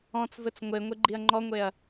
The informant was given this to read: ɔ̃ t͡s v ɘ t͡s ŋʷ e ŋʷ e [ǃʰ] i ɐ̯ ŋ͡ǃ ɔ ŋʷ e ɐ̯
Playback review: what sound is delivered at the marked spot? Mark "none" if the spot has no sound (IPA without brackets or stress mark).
ɡ͡ǃ